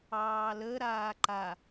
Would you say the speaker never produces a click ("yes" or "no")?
no